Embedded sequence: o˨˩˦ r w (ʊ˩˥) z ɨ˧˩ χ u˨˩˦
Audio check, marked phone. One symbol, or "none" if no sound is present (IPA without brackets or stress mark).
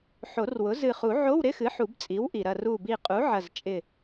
ʊ˩˥